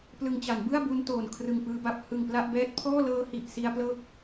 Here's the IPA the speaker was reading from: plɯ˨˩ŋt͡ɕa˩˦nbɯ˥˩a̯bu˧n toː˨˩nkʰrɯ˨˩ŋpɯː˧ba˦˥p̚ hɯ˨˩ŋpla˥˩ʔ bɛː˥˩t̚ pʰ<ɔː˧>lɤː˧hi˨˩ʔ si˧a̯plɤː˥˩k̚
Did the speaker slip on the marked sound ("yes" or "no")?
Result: yes